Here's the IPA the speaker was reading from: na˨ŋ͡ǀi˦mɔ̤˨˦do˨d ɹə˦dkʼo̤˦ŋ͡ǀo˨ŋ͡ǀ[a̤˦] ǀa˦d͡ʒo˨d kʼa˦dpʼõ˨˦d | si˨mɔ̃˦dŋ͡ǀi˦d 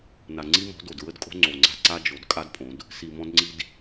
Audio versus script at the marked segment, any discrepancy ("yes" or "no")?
no